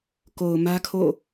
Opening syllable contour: low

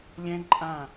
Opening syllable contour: high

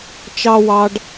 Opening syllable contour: high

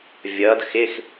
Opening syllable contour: rising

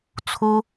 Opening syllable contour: high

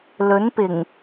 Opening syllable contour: rising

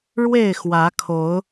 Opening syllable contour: falling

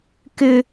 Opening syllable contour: low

